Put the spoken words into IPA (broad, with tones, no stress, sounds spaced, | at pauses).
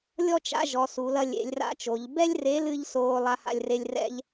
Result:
lʲ ɔ˥ t͡ʃ a̰˧˥ ʒ ɔ˧˥ s u˧˥ l ɐ˥ lʲ ḛ˧˥ lʲ r a̰˥ t͡ʃ o˧˥ ʎ b ɛ˥ lʲ r e˧˥ l ɨ˥ ʎ s oː˥ lˠ a˥ h a̰˥ lʲ r e˥ lʲ r ɛ̰˥ ʎ